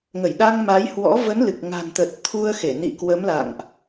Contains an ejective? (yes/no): no